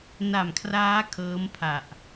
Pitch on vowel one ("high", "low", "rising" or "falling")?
low